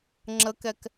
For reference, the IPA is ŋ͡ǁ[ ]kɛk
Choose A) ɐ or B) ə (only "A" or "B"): B